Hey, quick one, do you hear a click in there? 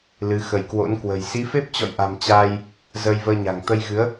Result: no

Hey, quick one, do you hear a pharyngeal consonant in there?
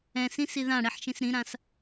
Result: yes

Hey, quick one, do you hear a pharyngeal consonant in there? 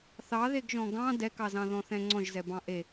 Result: no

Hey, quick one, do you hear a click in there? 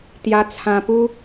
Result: no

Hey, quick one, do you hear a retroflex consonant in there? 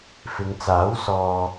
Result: no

